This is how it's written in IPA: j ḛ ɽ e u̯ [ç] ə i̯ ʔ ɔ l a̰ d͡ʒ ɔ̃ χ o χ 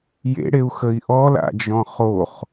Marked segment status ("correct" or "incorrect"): incorrect